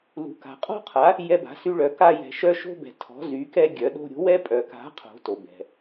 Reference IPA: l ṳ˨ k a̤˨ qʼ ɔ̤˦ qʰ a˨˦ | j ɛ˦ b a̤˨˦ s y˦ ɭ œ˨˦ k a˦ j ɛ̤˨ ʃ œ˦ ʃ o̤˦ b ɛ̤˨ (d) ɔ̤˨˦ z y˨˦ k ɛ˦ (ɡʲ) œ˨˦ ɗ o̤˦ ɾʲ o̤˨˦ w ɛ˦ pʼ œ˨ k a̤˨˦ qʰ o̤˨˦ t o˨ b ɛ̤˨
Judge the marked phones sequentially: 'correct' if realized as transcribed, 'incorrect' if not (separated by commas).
incorrect, correct